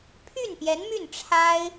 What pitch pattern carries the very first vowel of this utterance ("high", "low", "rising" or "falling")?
falling